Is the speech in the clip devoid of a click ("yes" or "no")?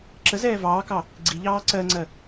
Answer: no